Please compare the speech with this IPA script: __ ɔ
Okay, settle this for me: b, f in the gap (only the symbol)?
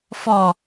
f